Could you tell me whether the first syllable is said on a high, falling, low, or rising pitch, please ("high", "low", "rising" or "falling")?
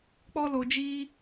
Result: high